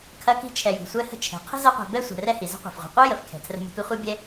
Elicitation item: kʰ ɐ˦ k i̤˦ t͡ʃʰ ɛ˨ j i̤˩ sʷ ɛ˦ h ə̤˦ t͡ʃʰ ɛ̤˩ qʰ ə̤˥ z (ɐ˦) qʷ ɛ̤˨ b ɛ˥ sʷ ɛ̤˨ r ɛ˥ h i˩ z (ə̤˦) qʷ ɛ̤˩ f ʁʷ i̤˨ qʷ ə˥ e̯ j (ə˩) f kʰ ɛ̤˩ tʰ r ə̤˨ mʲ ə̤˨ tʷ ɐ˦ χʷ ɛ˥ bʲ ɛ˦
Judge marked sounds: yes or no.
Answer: yes, yes, yes

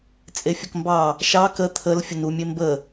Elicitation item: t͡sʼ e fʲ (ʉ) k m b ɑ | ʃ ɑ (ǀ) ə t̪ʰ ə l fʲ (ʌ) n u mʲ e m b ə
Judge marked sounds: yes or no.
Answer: no, no, no

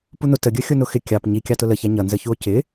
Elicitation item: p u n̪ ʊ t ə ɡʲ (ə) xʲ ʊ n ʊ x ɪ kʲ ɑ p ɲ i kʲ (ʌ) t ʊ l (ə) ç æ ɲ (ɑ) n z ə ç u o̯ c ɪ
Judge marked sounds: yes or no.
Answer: yes, no, yes, no

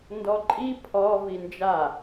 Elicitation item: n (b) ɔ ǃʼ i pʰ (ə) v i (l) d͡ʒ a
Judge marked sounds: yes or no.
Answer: no, no, no

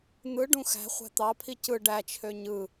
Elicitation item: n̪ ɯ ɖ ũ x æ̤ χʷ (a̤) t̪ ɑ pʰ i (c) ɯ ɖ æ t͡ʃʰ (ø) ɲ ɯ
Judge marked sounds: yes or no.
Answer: no, yes, yes

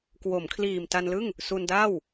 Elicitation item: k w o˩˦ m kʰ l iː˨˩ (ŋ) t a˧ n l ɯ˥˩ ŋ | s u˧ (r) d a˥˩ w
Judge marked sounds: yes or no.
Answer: no, no

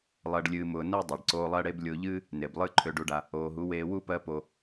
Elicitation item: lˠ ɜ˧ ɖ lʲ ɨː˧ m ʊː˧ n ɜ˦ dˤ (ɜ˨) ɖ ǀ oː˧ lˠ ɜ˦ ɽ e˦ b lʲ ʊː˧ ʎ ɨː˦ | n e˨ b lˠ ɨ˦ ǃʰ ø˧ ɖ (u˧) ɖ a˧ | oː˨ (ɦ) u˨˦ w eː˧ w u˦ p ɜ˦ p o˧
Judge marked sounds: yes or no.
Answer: yes, yes, yes

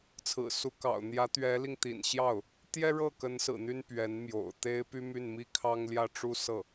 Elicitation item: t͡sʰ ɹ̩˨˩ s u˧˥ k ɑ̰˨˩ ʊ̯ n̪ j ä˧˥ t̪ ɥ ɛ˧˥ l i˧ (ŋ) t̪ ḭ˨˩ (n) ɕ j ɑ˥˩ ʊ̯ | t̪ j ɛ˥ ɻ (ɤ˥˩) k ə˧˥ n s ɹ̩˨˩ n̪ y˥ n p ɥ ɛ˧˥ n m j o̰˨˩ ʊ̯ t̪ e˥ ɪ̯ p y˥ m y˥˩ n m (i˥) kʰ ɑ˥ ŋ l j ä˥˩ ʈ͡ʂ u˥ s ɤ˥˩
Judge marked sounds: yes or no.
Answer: yes, yes, yes, yes

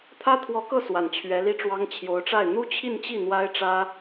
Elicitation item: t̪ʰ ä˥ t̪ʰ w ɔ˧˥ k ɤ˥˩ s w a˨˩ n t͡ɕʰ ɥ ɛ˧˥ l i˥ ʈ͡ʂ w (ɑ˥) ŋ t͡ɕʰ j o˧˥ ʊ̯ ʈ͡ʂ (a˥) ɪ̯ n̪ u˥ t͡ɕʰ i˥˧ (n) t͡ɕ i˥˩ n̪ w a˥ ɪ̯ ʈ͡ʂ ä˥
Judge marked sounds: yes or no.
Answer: yes, no, yes

